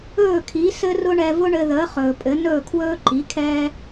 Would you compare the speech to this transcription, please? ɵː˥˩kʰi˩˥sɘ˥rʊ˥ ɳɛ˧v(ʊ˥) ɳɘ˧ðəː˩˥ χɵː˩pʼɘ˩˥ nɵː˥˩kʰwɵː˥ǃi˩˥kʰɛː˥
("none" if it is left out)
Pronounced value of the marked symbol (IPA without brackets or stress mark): ʊ˥